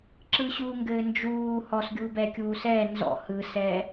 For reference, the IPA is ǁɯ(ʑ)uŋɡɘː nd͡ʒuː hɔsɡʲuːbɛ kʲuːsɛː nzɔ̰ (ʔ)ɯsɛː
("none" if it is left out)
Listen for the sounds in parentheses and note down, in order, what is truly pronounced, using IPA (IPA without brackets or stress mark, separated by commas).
ɕ, h